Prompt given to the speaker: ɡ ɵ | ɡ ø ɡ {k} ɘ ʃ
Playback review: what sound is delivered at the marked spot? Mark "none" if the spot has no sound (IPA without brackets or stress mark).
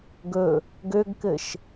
k